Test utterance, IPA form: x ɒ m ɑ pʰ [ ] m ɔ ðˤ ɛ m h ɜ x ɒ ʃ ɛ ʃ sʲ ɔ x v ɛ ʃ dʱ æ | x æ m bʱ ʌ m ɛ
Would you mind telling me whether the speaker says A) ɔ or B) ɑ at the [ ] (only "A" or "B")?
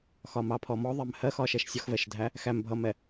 A